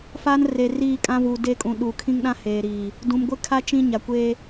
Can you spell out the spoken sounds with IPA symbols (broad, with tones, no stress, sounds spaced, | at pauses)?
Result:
f aː˦ n r e˨ r iː˦˨ kʼ ã˦ v uː˨ d e˦˨ kʼ ũ˨ ɗ u˨ kʰ ĩ˦ ŋ ɗ ã˦ h eː˨ ɾ iː˨ | d ũ˨ m ɡʷ ɪ˦ kʰ a˦ t͡ʃ ĩ˦ ɲ a˨ kʷ eː˦